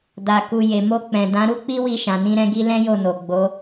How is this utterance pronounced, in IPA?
d a˨ k u˨ j e˨ m o˧ k͡p ɛ̃˨ d ã˨˦ ɾ u˦ k͡p i˦ w i˧ ʃ ã˨ n ĩ˧ ɾ ɛ̃˧ ɡ i˦ l ɛ̃˦ j o˦˨ n o˨ ɡ͡b o˨˦

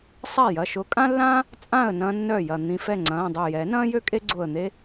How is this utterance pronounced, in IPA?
sˤ a˥˩ j ɐ˩˧˩ ʃ ʊː˨˦ kʼ ã˥ lː ãː˥ | t͡sʼ ã˥˩ ə̯ n ɐ̃ː˥ nː œ˥˩ j ɐ˧˩ n̪ ĩ˧˩ f ɛ˥˩ ŋ͡ǀ ɐ̃ː˩˧˩ dˤ ø˧˩ j ɛ˨˩˦ n ɐ̃ː˥ j ø˥ kʼ e˥ ɡ͡ǀ ʊː˧˩ ə̯ n̪ e˥

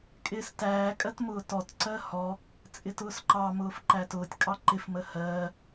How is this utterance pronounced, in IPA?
kʼ ɪː s t æː kʼ ɜ t m ʊː t ɔ t ǀ ɜ h ɔ | t͡sʼ ɪ t ʊː s ǃ ɑ m ʊː f ǃ æ t ʊː tʲ kʼ ɑ ǃ ɪ f m ə h ɜː

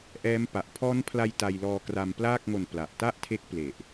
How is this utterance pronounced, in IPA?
ʔ ɛː˦˥ m p a˨˩ ʔ pʰ ɔː˦˥ n pʰ l a˧ j t a˧ j l ɔː˧ k r a˧ m p l aː˥˩ k̚ ŋ o˨˩ n p l a˨˩ ʔ t a˥˩ ʔ tʰ e˦˥ k̚ p l e˨˩ ʔ

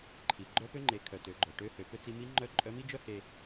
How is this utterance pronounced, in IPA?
ǃʰ i˩ ɡ͡ǃ œ˧˥ p ø˧˥ ŋ͡ǃ e˩˧ kʰ œ˩ t ø˩˧ ɡ͡ǃ œ˩ ʈ ø˧˥ h ø˩˧ p ø˧ t͡s i˩˧ m i˧˥ ŋ͡ǃ œ˧˥ ǃʼ œ˧˥ m i˥ d͡ʒ œ˥ h e˧

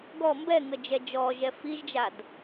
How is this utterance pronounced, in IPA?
ɡ ɔ m b ɛ ŋ ə d͡ʒ ɛ d͡ʒ ɔ ʒ ɛ f i ʒ d͡ʒ a d

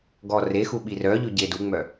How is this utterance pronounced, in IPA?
ɡ ɔ r e x u ɓ i r œ ʎ ʉ ɟ e d u ŋ͡m œ

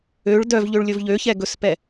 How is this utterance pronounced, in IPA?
ø ɭ d œ v ʎ ø ɭ lʲ ɵ v ʎ ø ç ɛ ɡ ɵ s p ɛ

